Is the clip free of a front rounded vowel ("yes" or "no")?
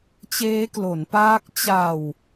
yes